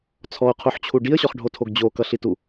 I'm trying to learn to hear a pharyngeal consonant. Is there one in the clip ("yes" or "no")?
yes